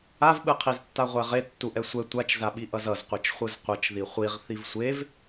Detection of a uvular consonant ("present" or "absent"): present